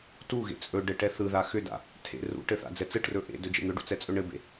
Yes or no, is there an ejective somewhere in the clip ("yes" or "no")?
yes